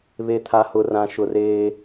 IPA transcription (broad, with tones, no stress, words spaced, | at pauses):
βe˨tʰa˨hʊ˨ rã˨ʃʊ˨reː˦